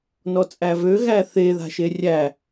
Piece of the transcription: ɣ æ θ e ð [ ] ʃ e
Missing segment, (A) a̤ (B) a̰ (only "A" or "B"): A